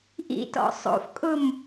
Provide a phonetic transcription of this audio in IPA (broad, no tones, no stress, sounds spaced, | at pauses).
ʔ ḭ t ɔ̰ sˤ o̰ f kʼ ʊ m